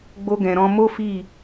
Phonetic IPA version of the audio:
ɡ͡b o˧ ɡ ɛ̃˨ ɾ ɔ̃˧ m o˦ f i˦˨

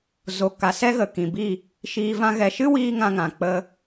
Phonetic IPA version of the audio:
z o˨ k a˨ s ɛ˦ ɣ ə˨ k ĩ˨ b i˦˨ | ʃ iː˧ v ã˦ ɣ ɛ˧ ʃ ɨ˦ w iː˧ ŋ ã˧ ŋ ã˨ k͡p ə˧

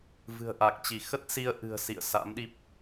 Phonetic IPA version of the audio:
v ɨ̤˨˩ ə̯ ʔ a˨˩ k̚ t͡ɕ i˧˩ x ə˦˥ t̚ s i˧ ə̯ ʔ ɨ̤˨˩ ə̯ s ḭ˧˨ ə̯ s a̰˧˥ m ɗ i˦˥ p̚

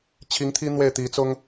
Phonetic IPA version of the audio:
t͡ɕʰ i˧˥ ŋ t̪ʰ i˥ n̪ w e˥˩ ɪ̯ t̪ i˧˥ t͡s ʊ˥ ŋ

